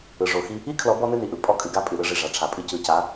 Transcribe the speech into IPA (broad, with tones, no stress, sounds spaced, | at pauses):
ɯ˨ ʐ o˨ x i˦ | i˦ kʰ l ɔ˨˦ b ɔ˦ n ɨ˦ n i˨ ʔ ɯ˨ pʼ ɔ˦ kʼ ɨ˨ ɡ a˦ pʼ ɨ˨ ɾ ɯ˦ ʐ i˨ ʐ a˨ ʈ͡ʂʰ a˨ pʼ ɨ˦ c ɯ˨ c a˨˦